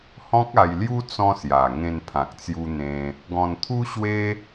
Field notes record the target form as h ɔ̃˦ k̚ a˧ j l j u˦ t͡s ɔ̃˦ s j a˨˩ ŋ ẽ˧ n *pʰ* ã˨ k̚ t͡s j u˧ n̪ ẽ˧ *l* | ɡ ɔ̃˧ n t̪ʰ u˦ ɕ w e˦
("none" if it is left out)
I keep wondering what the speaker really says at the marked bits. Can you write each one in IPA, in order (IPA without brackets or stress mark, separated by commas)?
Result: pʰ, none